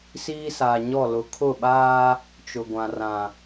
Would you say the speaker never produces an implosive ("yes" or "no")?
no